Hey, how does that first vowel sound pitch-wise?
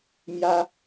high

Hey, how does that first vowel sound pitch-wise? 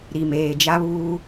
low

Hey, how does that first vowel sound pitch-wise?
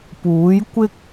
rising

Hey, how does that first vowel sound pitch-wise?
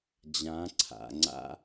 rising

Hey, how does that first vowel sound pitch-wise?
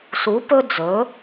rising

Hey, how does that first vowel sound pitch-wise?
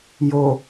low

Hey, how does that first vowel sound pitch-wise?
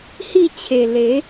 falling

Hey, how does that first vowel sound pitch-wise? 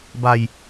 low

